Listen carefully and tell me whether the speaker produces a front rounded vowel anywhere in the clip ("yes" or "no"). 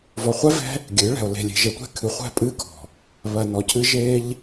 no